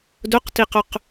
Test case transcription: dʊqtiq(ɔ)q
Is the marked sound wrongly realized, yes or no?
yes